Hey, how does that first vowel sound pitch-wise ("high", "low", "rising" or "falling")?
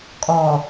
low